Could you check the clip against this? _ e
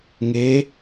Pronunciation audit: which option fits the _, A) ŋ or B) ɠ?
A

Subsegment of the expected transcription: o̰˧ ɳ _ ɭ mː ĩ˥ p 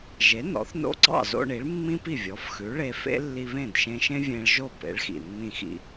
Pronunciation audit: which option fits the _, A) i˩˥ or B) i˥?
A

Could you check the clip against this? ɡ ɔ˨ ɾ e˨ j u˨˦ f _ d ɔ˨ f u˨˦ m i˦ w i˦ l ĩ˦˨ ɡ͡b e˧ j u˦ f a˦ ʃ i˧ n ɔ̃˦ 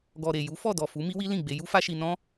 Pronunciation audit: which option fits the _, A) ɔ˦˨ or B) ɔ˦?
A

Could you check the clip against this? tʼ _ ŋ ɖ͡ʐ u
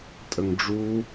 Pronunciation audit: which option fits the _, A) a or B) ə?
B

